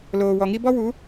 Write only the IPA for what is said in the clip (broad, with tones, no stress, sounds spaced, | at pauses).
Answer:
l oː˨ w ɔ˨ ŋ i˦ b ɔ˦ w u˨˦